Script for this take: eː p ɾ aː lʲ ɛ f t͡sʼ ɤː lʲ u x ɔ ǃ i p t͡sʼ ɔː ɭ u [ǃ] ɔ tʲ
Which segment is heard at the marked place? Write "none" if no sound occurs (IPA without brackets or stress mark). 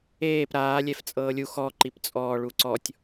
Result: ǀ